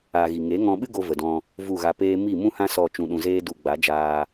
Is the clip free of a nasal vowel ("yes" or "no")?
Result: no